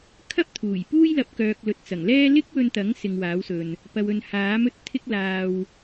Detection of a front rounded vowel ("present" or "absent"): present